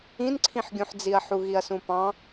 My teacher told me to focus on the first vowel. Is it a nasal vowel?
yes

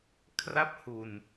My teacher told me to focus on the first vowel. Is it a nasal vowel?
no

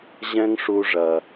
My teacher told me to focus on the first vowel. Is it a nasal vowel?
yes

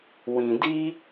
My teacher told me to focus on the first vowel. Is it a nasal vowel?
yes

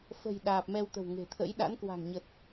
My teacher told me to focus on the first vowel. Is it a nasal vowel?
no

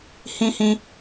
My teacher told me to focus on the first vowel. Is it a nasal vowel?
yes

